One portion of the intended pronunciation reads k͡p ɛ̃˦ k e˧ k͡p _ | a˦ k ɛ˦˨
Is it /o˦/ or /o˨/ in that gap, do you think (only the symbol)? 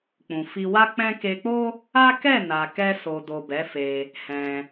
o˦